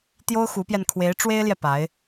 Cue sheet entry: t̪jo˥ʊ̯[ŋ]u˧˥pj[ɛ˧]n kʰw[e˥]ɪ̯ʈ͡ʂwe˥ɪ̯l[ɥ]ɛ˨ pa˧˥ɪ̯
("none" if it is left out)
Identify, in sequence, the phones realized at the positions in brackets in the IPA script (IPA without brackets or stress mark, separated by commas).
x, ɛ˧, e˧˥, j